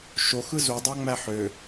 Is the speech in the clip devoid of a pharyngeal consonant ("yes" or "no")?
no